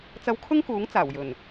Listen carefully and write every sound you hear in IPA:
t͡sɐ˧wkʰʊ˥ŋkuː˨˥ŋ t͡saː˨˩wjɵ˨˩n

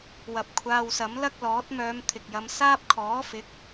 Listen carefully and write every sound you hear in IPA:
wɐ˨˥p̚kʷʰaː˧wsɐ˨˥m lɐ˥k̚lɔː˨˥t̚mœː˧m t̪ʰɪ˨k̚jɐ˧m saː˥p̚kʰɔː˨˥fɪ˨˥k̚

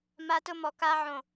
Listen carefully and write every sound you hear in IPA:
ma˦˥tʊ˦˥mɔ˧˩ka˦˥ ʕõ˧˩

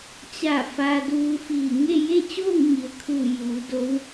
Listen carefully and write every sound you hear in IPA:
t͡ɕa˧˩ fa˧duː˧ fiː˧˩ŋe˥˨ je˥˨t͡ɕoː˥˨ŋ ɲi˩ə̯kʰuː˧˩ juː˩˧do˧˥w

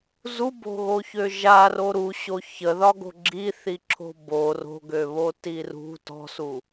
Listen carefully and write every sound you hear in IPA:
zubo̤ɣoçø ʒaro ɾuɕo çəðɒɡo̤ ɡ͡ǁiθiǁʰo̤ bo ro̤ɡøβoti rṳ tɔ̤su

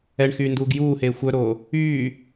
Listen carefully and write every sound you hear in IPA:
ɛɳxyːnduːɡ juːheː xʷœɾoː | yː

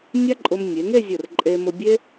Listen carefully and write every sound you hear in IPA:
nʲa˥ǃʼʊ˧m nʲe˩˧ŋe˥˧ zʲə˧˩r ǃʼe˧mʊ˧bʲe˥

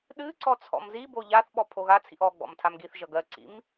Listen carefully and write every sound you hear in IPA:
ɗɨǀɔ t͡sʰɔ̰mzibo ʎaθɓɔ pʰoɣat͡sʰḭʔ ɔ ɡ͡bɔ̰mtʰamɡiθʒʌ ɡɜǀḭm

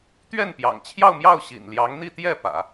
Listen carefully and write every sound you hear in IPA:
t̪ɥɛ˥˩npjɑ̰˨˩ŋt͡ɕʰjɑ˥˧ʊ̯mjɑ˥˩ʊ̯ ɕḭ˨˩nljɑ˧˥ŋn̪i˥˧t̪jɛ˥˩ pä̰˨˩˦

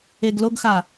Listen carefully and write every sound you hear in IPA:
eɡloɡxa

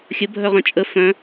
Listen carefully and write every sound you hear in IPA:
xʲə bʱœʁœ̃t͡ʃʼə fœ̃

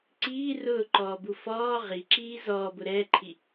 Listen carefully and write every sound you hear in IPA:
ǀiː rʊːǃɔːbu fɔː ʁiǁiː zɔːbʊ ɾɛːǃʰi

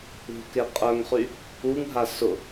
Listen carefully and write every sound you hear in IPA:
ṳke qʼœŋχy | uŋɦa sʊ

